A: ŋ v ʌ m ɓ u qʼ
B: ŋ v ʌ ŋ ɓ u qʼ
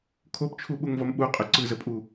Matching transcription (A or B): A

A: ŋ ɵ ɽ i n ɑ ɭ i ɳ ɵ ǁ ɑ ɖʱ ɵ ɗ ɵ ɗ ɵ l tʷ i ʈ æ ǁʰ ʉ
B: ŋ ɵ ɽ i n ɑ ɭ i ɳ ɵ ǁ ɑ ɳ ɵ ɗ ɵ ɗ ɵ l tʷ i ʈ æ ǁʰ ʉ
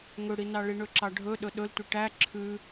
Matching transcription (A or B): A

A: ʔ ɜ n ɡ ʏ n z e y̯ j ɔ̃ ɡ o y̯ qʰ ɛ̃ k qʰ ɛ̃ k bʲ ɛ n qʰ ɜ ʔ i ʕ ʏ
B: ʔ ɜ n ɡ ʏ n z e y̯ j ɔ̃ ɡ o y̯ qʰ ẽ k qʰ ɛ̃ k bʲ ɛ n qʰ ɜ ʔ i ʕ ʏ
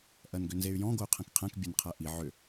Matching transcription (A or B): A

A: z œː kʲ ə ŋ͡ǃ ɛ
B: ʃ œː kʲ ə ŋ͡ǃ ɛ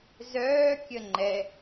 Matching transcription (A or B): A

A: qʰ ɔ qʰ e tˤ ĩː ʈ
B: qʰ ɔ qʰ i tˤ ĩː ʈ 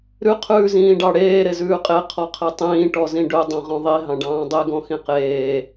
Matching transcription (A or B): A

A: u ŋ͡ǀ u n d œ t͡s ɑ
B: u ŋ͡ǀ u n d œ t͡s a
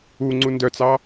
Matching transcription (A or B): A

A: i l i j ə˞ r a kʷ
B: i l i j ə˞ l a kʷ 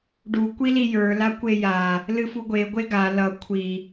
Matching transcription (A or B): B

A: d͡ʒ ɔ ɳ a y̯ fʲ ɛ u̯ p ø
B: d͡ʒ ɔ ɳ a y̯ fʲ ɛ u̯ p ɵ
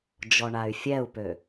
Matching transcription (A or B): A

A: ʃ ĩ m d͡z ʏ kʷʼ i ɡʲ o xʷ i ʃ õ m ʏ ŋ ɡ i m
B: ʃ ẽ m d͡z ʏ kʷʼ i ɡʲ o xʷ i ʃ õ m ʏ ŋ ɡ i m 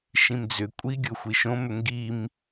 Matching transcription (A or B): A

